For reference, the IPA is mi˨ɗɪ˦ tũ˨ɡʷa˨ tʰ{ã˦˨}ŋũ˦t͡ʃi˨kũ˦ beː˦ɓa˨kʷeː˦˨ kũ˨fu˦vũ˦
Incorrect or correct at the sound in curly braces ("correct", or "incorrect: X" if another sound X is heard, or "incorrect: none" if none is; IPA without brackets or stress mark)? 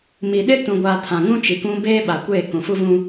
incorrect: ã˨